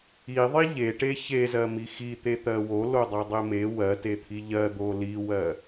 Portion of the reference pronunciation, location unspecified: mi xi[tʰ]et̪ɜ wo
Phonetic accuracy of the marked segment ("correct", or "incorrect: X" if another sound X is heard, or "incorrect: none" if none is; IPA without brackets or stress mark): incorrect: t̪